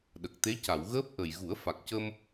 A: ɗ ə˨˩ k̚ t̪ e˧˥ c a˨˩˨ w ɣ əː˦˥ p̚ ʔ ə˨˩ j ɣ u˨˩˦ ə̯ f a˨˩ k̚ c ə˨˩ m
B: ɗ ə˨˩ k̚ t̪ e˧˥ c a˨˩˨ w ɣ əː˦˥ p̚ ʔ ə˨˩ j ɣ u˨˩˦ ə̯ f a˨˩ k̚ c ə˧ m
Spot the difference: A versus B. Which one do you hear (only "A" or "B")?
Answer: B